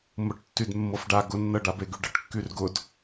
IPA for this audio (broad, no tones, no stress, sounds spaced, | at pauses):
m ʊ ʈ tː y d mː ɤ f ɖ a ɡ ʊ nː ɤ ɖ a b e ɡ y ɖ ə ʈ kː y r ɡ ʊ d